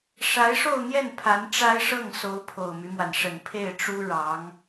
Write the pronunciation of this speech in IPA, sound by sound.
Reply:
ʂa˧˥ɪ̯ʂo˥˧ʊ̯n̪jɛ˥˩n pʰa˧˥nʈ͡ʂa˥ɪ̯ʂɤ˥˩ŋso˧˥ʊ̯ pʰo˨˩ʊ̯my˦mwa˩nʂə˨˩n pʰe˥˩ɪ̯ʈ͡ʂu˥ ɻɑ˧˥ŋ

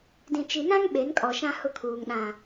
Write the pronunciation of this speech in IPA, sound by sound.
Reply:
dĩ˨t͡ʃi˨nã˦ŋ ɓe˨˦nkʼɔ˨ʃã˦ hʊ˦kʰuː˨ŋ ɗã˨

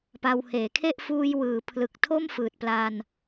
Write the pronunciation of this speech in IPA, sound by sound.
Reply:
pa˧wheː˩˦kʰe˥˩ʔ fuː˧j wɯː˩˦pʰlɯ˨˩k̚ tʰo˥˩mfɯː˨˩t̚pla˧n

